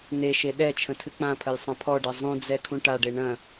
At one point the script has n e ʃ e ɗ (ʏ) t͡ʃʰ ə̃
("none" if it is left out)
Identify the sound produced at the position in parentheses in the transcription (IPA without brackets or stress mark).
ɛ